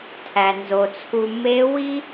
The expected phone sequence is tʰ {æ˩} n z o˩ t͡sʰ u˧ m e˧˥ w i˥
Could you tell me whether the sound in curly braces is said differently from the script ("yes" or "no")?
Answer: no